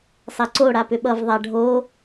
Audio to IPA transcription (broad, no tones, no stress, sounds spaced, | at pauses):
sˤ ɛ ǀ o ɽ a p ʏ ɓ ʌ v ðˤ a ɖʱ o